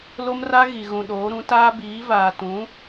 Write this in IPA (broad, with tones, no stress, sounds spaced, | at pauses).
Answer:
l o˦ m r a˦ ɣ i˨ ɣ ũ˨ ɗ oː˨˦ ɾ ũ˨˦ t aː˦ b iː˨˦ v aː˨ t ũ˨˦